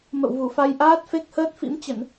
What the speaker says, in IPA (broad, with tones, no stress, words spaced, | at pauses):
mə̰˧˨wvu˧˩fa˧j ʔaː˦˥t̚fe˦˥k̚ həː˦˥t̚fḭ˧˥mt͡ɕə˧˩˨n